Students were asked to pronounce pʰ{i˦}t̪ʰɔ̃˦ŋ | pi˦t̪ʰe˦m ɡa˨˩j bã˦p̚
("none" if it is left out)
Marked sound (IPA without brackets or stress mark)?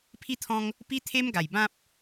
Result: i˦